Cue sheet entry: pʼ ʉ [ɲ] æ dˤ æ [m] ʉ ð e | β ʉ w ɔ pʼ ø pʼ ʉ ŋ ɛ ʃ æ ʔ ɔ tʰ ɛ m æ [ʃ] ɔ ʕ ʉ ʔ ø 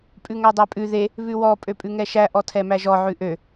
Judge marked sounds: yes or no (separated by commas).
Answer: no, no, no